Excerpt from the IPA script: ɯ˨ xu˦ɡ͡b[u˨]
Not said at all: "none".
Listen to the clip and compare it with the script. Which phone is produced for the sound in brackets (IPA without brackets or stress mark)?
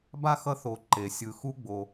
o˨